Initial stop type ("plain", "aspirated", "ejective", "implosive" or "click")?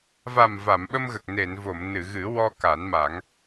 implosive